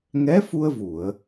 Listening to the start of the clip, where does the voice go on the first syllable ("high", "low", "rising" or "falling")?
rising